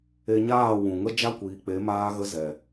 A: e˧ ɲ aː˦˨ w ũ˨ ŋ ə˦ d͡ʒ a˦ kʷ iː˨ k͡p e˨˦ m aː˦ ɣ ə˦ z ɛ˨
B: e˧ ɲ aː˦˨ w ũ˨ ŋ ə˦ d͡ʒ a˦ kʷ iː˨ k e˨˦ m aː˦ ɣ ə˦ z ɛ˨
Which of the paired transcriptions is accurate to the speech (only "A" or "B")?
A